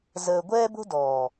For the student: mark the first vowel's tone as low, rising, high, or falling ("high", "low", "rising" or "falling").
low